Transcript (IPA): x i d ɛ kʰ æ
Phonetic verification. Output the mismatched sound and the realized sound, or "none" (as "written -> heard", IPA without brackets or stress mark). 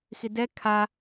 æ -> a